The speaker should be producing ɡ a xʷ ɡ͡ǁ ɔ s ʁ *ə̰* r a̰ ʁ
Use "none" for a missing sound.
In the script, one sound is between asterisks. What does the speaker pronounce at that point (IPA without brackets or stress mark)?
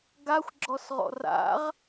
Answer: ɔ̰